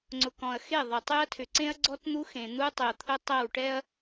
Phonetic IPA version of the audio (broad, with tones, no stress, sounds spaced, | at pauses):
ŋ͡ǀ ʊ˨ k ɔ̃˨ ɐ̯ x e˦˨ ðˤ ə˨ tˤ y˦ ɐ̯ tʰ ʏ˨ ǀ ẽ˦ ɐ̯ ɡ͡ǀ ɔ˦ t n̪ u˦ x ẽ˨ n̪ u˦ tˤ ʏ˨ ɐ̯ t̪ʰ ʊ˦ tˤ ɛ˦˨ w ʈ ɛ˦ ɐ̯